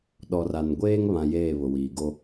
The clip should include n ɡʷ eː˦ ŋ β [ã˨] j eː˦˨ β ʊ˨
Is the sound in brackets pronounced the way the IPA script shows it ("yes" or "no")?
yes